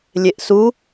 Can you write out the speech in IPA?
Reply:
lʲ e ʔ s u

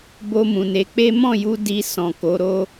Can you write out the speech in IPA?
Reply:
b o˧ m ũ˨ n e˨˦ k͡p e˦ m ɔ̃˦˨ j u˧ d i˧ s ɔ̃˨ k o˨˦ ɾ o˦

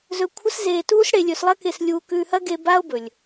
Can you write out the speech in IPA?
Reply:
z ɵ˧ kʷʰ ɐ˥ s z eː˧ t uː˥ s ɽ e˧ lʲ ɵ˧ s lˠ ɐ˥ k e˧ s lʲ uː˧ k ʉː˧ h ɐ˥ ɡ e˧ b a˥ o̯ b ɵ˩ lʲ

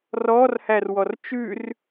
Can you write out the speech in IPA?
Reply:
r ɔː r h æ r w ɔ r t͡ʃ ʉ r

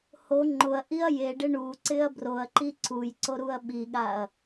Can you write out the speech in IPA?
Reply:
h o ŋ͡ǃ ʊ ɐ̯ ʔ i ɐ̯ j e ɖ ɪ ɳ u ǀ ɪ ɐ̯ b r o ɐ̯ ǃ i ǀ u j ǀ o ɾ u ɐ̯ ɓ i ɠ a ɐ̯

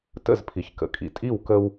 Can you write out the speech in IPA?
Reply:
t ə̰˦˨ z pʰ i˨ ç k ə̰˨ kʼ ḭ˨ tʼ i˦˨ w k ə˦ w

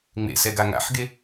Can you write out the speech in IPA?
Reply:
ŋ͡m ḛ s ɛ ɡ a ŋ a̰ ħ ɡ e

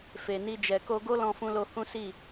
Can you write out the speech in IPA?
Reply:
f e˨ n i˧ d͡ʒ ɛ˨ k o˧ ɡ o˦ l ɔ̃˧ f ũ˧ l o˧ h ũ˦ s i˦˨

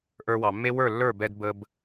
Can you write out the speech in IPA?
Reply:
ʔ ə˞˧ w ɑ˩ mː e˥ w ə˞˥˩ lː ə˞˥˩ b ɛ˧ d b ə˧ b

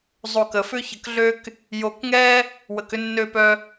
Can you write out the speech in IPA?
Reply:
zˤ o˧ k ə˨ f ʏ˦ ç ə˧ k ɮ ø˦ k | j o˧ k ŋ ɛ˦ | w ə˨ k ʏ˧ nː ø˧ p œ˧

